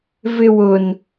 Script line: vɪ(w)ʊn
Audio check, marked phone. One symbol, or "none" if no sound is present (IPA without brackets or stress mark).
w